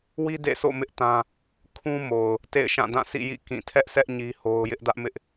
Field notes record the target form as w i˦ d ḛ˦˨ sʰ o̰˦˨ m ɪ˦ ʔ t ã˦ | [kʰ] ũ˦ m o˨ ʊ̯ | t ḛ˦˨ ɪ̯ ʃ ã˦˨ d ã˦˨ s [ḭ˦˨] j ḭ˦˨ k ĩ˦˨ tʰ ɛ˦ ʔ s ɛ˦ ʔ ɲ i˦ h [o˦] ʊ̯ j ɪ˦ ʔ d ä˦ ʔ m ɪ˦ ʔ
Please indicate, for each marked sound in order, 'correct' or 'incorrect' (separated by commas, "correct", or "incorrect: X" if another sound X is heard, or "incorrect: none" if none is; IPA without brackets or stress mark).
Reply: correct, correct, correct